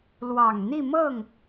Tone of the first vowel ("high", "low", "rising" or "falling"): low